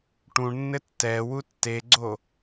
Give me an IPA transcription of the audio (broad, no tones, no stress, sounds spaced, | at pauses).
ʈ ũ ɳ nː ɘ tː ɛ w u tː e ɡ͡ǀ o